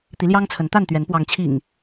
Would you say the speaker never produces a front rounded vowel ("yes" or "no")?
yes